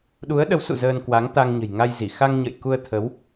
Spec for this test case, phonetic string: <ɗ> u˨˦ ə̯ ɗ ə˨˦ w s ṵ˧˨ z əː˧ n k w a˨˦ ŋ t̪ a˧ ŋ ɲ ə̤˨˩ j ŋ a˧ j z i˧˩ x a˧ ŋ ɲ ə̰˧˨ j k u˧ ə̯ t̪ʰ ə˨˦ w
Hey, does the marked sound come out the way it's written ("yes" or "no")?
yes